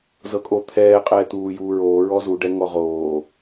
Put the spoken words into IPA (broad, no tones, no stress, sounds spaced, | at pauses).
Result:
z ɤ kʼ o t̪ʰ ɛː qʼ ɛː t̪ uː j uː ɹ oː ɹ ɔ z u ɖ ɛ ŋ ɔ ʁ oː